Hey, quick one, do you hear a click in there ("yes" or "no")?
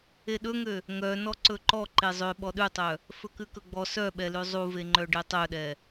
yes